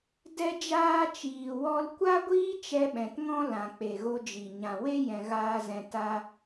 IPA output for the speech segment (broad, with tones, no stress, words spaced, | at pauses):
dɛ˦d͡ʒaː˦ t͡ʃiː˨wɔ˧lkʷa˦ɡʷiː˦ t͡ʃɛ˧ɓɛ̃˨tŋɔ̃˦ lã˨k͡pe˨ɣo˧d͡ʒi˨ ɲã˨we˦ jɛ̃˧ɣaː˦zɛ̃˧ ta˧